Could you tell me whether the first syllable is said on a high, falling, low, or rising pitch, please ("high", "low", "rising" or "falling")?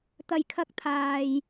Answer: low